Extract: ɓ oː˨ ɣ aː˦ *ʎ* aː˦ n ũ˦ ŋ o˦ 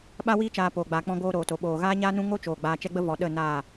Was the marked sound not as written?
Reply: yes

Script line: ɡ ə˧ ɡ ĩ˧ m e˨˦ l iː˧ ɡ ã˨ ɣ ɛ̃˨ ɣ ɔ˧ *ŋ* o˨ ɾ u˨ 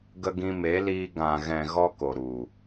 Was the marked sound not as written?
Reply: yes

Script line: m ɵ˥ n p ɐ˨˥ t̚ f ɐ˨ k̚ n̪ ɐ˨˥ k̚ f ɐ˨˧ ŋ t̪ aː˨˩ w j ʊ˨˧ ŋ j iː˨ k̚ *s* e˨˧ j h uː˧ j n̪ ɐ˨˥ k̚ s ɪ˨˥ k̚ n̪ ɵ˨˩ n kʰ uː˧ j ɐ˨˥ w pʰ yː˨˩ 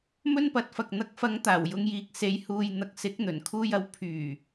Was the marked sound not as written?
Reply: no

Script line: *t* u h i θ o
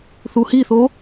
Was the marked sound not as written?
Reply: yes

